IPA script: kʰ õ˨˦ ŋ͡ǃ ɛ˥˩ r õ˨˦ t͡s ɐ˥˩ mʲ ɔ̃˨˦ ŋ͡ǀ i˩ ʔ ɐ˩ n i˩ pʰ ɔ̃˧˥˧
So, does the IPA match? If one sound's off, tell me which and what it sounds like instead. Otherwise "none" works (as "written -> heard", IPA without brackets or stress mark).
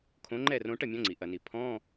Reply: t͡s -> ʈ